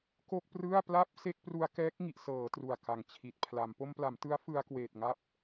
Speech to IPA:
ko˥˩k̚prɯ˥˩a̯ pla˥˩p̚se˥˩k̚pru˧a̯ kɛː˦˥k̚ŋi˨˩ʔ sɤː˩˦ tru˨˩a̯ka˨˩ŋt͡ɕʰi˨˩t̚ pʰla˩˦m po˧mpla˩˦mtɯ˦˥a̯ fɯ˧a̯kweː˨˩t̚ŋa˦˥p̚

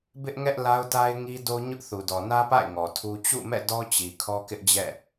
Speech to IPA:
bɪ˦ʔŋɛ˦ʔ la˦ʊ̯ta˦ɪ̯ŋi˦ do˦ɲʊ˦ʔθu˨ dɔ˨nä˦pa̰˦˨ɪ̯ ŋɔ˨tʰu˦ t͡ɕṵ˦˨mɛ̰˦˨ dɔ˦t͡ɕi˨ kʰɔ˦kɪ˦ʔd͡ʑɛ̰˦˨

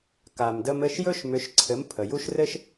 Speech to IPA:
ka˩mdə˧mɘ˥˩ʃ jɵ˥ʃmʏ˩˥ʃǀʰɘ˩˥m pʰə˩ju˥ʃ rɘ˥ʃ

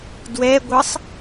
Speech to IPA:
dwɛɡʷɯsˤ

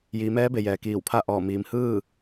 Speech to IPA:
jiː˩˧mɛː˧˥be˩ jɛː˩kiː˧˩wpʰa˥˨ ʔɔː˧˩miː˩m hɯː˥˨

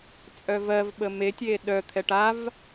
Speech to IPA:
t͡sʼœvɜvɓə metʲeː ɗœt̪ʰɛʈ av

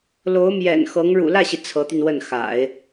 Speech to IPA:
lo˧˥ʊ̯mjɛ̰˨˩n xɤ˧˥ŋ ɻṵ˨˩lä˥˩ɕi˩ t͡sʰɤ˧˥t̪y˧nwə˥˩n xa̰˨˩˦ɪ̯

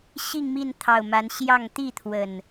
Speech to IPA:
ɕi˥˨ŋmi˥˨n t̪ʰɑ˨˩ʊ̯ ma˨˦nɕjɑ˥˨ŋ t̪i˥˨t̪ʰwə˨˩n

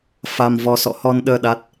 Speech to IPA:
fa˧mvɔ˧ sɔ̰˧˨hɔ˧nɗəː˧ ɗa˦˥t̚

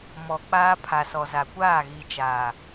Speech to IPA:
mɔ˨k͡paː˦ pʰa˨sɔ˨za˨ kʷaː˦˨ɣi˨t͡ʃaː˨

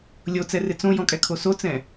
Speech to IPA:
lʲot͡sɛrɪ t͡sõjɔ̃kʼɛkʰo sot͡sɛ̃

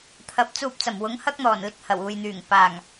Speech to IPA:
t̪ʰɐ˨˥p̚t͡suː˧p̚t͡sɐ˨˩m wʊ˨˥ŋhɐ˥k̚n̪ɔː˨˩n lɪ˧k̚hɐ˨˩wuː˨jn̪yː˨˩ŋ paː˨˩ŋ

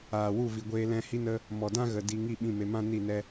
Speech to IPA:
aː˨wu˦˨vi˨ɡʷeː˧ lɛ̃˧ hi˦nə˦ | mɔ˨dã˦ɣə˨ di˧ŋi˦˨ ɓĩ˦˨me˧ mã˦ ni˦˨nɛ˦

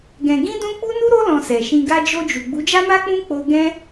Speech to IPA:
ɡɛ̃˧ ɡĩ˦dũ˦ k͡pu˦nu˦ɾo˦ lɔ̃˧sɛ˨ʃĩ˧ ɡa˧d͡ʒo˧d͡ʒu˨ ɡ͡bu˨˦d͡ʒa˦ma˦k͡pũ˦ k͡po˦ ɡɛ̃˦

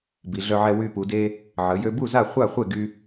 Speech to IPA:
bi˩˧ɮœ˧ʕɛ˧ wy˧pu˩˧de˧ | ʕə˩˧ jø˧bu˥˩za˥˩ χʷa˥˩χʷe˥˩ɡy˧

